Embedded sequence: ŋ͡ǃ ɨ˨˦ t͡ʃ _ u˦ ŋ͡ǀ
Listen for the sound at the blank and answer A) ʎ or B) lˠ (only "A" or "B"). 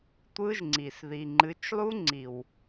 B